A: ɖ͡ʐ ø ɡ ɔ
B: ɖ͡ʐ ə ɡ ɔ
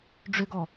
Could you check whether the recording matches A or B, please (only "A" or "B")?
A